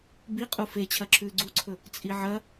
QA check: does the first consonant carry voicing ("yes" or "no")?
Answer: yes